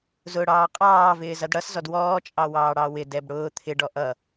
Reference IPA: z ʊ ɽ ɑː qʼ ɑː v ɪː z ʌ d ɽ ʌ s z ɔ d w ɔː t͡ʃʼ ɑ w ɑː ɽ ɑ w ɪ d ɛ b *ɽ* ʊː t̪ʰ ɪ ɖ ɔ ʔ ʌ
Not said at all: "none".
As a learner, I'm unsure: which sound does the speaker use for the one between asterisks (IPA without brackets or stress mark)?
ɽ